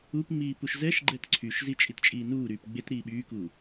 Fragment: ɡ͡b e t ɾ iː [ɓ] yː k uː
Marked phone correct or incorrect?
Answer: correct